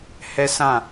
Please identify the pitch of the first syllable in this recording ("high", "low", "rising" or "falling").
high